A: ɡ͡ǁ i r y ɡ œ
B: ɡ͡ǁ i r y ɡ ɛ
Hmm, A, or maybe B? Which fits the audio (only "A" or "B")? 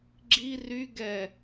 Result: B